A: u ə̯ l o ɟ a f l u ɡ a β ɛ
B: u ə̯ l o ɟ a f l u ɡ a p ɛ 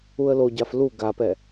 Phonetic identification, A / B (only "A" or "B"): B